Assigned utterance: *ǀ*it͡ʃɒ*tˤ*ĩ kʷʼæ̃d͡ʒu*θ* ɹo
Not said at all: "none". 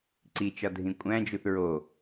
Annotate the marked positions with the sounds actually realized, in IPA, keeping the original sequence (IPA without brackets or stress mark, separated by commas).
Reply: ǀ, dʱ, θ